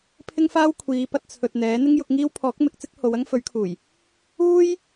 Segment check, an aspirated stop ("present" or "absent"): present